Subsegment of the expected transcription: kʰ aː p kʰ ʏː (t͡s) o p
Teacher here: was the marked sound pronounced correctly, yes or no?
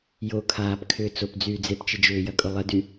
yes